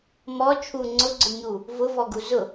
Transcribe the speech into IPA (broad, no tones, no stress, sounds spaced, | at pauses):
m ɔ t͡ʃʰ u ŋ͡ǀ ʊ ɡ͡ǀ ʊ ɲ u | v ʊ v ɔ ɡ u z ʊ